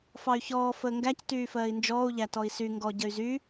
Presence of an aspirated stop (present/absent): absent